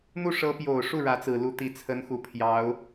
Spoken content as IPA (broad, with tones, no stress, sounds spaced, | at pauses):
n̪ u˥˩ ʂ ɤ˧˥ p j o˨˩ ʊ̯ ʂ u˥˩ ɻ ä˧˥ t͡s ɹ̩˨˩ l u˥˩ t̪ i˧˥ t͡sʰ ə˧˥ n x u˨˩ pʰ j ɑ˧˥ ʊ̯